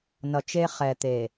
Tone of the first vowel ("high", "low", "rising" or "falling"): low